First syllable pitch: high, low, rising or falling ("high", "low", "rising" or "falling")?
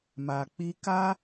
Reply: low